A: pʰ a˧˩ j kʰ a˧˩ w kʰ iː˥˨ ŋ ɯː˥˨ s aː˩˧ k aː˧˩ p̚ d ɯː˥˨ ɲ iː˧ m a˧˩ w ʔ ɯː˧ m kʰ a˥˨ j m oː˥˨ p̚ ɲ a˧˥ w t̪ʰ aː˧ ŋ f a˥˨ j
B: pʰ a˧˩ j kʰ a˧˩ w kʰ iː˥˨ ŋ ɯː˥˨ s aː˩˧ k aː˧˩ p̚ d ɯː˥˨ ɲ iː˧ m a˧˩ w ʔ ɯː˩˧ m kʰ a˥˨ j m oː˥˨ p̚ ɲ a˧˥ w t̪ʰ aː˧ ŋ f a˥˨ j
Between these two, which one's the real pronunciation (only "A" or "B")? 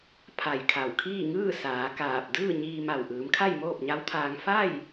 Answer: B